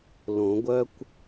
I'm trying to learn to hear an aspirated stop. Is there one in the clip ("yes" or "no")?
no